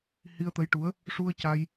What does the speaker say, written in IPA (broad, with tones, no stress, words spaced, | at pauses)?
hi˧ə̯t̪ə˧˥jʈu˧˥ə̯ | ʂu˧ə̯ca˧j